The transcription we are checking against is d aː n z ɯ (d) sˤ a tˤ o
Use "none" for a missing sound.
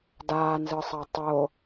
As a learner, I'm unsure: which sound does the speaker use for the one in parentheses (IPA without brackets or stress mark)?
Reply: none